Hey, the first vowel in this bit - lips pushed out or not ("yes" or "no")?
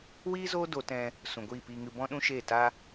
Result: no